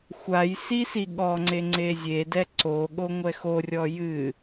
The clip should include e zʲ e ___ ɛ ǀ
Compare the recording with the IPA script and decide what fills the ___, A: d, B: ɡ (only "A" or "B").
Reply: A